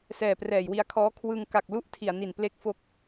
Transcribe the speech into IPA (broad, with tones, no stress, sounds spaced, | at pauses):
s ɛː˨˩ p r ɛː˨˩ j w i˧ a̯ kʰ ɔː˦˥ kʰ w ɯ˧ ŋ k a˨˩ k̚ l u˥˩ ʔ tʰ i˨˩ a̯ n i˨˩ n p l e˦˥ k̚ f o˦˥ k̚